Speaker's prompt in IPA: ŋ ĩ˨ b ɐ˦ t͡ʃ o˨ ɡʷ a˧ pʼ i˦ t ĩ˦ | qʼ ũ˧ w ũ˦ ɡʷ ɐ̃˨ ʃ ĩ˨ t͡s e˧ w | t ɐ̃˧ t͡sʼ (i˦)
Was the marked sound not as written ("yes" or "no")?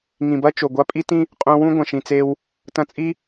no